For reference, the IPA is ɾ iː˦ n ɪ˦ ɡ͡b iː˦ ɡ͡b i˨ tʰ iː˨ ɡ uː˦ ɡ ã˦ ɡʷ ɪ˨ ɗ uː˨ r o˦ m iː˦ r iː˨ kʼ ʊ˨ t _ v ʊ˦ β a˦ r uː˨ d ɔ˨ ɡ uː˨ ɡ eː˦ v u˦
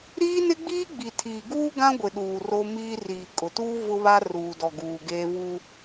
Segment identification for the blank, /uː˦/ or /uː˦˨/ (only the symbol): uː˦